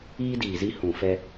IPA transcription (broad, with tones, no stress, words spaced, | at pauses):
iː˦diː˨ zi˦ hũ˨fɛ˦